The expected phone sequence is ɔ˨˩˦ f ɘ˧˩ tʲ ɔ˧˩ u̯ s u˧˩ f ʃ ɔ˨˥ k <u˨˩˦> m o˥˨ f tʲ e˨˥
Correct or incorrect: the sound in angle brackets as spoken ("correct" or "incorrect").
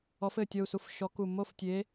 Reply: incorrect